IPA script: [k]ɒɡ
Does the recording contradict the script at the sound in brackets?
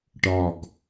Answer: yes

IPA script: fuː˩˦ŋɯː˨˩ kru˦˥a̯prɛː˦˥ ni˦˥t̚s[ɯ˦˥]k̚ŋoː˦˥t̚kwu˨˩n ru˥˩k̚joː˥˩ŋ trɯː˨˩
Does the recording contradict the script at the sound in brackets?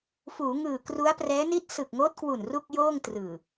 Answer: yes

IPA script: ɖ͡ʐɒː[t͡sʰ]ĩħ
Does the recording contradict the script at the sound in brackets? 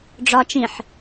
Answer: yes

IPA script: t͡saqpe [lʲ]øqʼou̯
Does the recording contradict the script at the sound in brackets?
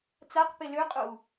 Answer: yes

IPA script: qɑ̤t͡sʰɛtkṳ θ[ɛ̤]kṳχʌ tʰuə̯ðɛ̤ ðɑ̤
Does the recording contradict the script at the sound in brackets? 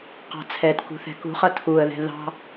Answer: no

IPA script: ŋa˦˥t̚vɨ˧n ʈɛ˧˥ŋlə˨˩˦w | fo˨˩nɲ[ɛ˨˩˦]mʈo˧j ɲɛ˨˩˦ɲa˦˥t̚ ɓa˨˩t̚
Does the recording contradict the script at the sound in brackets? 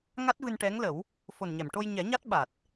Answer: yes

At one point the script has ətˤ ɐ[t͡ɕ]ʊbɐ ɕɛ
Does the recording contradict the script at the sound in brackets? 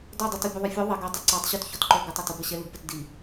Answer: yes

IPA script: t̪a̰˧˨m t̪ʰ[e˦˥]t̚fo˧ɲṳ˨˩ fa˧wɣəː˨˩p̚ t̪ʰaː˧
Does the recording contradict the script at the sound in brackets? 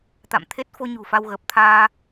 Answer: no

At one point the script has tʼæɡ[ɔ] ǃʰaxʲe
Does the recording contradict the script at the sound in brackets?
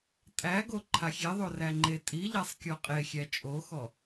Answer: yes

